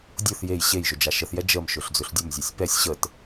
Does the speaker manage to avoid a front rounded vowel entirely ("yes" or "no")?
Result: yes